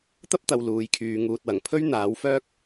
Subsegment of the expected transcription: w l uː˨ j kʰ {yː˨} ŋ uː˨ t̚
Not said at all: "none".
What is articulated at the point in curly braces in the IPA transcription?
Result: yː˨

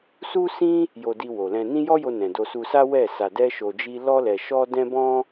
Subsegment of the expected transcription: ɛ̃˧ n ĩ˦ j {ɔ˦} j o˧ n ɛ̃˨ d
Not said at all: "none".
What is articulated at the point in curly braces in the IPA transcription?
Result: ɔ˦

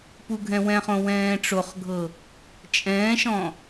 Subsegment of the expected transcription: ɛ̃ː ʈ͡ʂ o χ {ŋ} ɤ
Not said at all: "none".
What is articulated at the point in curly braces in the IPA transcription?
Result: ɡʱ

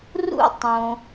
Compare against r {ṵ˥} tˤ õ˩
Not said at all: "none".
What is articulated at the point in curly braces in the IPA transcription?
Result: ṵ˥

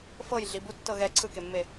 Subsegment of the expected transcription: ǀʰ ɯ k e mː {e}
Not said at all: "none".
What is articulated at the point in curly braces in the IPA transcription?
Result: e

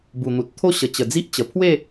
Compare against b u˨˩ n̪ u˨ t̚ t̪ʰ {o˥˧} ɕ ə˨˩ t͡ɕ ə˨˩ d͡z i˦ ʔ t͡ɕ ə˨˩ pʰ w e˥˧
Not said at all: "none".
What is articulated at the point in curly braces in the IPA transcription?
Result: o˥˧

